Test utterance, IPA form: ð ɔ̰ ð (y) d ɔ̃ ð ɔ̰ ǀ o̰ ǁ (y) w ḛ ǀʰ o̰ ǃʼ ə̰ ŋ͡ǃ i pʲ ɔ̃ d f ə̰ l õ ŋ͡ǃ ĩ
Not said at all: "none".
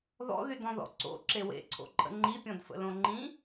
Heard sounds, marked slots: y, e

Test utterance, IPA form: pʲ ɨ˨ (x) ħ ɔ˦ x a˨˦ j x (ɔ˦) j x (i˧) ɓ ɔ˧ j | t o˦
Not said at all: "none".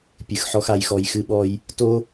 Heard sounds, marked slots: x, ɔ˧, ɨ˧

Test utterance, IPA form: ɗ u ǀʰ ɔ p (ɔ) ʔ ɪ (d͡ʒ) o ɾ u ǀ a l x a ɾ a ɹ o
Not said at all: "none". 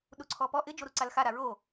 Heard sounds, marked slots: ɔ, d͡ʒ

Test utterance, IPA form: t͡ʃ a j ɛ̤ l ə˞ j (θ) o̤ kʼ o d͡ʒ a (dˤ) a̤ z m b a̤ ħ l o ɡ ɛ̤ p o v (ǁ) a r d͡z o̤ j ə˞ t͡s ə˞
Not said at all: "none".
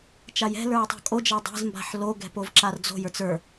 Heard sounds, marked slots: tˤ, dˤ, ǁ

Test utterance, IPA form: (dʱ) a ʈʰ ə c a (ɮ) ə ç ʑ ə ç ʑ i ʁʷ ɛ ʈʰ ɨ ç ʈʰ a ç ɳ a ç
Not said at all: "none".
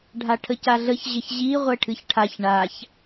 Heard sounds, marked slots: ɖʱ, ɮ

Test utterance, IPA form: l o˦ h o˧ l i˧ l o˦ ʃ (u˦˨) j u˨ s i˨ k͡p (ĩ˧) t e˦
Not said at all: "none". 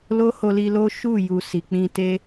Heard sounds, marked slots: u˦˨, ĩ˧

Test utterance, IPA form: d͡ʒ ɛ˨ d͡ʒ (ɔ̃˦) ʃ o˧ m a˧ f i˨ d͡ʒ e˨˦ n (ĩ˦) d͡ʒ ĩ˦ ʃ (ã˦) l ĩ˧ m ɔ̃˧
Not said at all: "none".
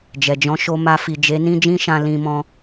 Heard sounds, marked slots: ɔ̃˨˦, ĩ˦, ã˦

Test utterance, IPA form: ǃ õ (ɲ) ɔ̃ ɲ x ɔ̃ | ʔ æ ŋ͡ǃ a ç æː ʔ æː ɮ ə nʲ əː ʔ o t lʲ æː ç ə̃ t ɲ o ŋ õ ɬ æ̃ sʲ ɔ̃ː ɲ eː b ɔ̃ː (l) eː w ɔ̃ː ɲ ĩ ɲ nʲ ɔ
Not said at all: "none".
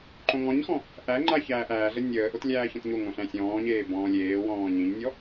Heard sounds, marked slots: ŋ, lʲ

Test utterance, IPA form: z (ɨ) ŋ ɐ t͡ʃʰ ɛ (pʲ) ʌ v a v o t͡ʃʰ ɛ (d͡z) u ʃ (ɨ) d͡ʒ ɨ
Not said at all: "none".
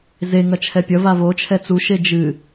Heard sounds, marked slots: e, pʲ, t͡s, e

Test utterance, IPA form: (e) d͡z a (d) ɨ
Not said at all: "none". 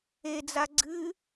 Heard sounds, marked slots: e, ɡ͡ǀ

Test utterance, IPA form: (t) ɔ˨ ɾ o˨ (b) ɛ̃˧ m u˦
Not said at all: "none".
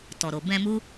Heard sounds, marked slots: t, b

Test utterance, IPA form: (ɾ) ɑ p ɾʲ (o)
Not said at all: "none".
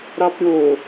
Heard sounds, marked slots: ɾ, o

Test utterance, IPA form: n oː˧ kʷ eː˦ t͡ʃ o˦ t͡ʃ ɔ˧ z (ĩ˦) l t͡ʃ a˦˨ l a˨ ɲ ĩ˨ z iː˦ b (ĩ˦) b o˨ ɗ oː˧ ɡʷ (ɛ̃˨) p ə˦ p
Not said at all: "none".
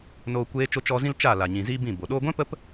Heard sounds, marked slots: ĩ˦, ĩ˦˨, ɛ̃˦

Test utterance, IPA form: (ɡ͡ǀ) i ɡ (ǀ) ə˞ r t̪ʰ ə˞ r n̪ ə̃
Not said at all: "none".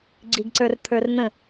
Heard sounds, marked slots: ɡ͡ǀ, ǀ

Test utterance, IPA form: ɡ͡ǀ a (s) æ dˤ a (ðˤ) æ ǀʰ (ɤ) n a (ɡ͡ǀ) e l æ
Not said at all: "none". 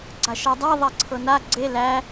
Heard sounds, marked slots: ʃ, ðˤ, ɤ, ɡ͡ǀ

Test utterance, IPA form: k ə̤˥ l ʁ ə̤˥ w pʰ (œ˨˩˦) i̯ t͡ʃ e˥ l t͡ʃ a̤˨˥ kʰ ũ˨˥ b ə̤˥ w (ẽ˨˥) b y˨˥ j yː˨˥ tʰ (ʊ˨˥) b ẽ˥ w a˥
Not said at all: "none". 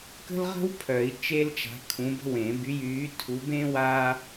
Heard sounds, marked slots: œ˨˩˦, ẽ˨˩˦, u˨˥

